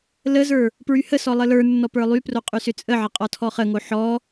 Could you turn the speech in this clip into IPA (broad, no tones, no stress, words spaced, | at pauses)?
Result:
ləzə˞ | pɹyhəsɔ lˠələ˞nːɔ pə˞lˠypro qʼysʏt͡sʼəʕə qʼɔtʰɔχəŋo ħɔ